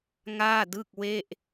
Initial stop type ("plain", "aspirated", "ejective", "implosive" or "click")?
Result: plain